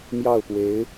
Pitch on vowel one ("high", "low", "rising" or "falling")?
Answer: falling